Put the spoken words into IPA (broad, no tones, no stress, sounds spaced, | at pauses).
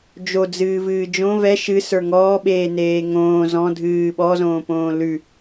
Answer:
d͡ʒ o d͡z ɨː v ɨː d͡ʒ õ v ɛ ʃ ɨ s ə˞ ŋ ɔː ɓ eː n eː ŋ õː z ɔ̃ dʱ ɨː ɓ ɔ z õː p õː l ʉ